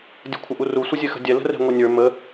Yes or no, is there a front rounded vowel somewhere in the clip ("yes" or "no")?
no